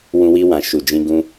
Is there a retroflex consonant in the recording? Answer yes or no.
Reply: no